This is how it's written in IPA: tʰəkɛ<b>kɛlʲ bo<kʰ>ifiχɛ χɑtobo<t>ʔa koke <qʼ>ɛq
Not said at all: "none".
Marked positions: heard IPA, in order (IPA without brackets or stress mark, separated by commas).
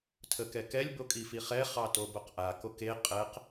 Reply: none, kʼ, q, qʼ